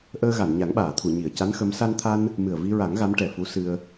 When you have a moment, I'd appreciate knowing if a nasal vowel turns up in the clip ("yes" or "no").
no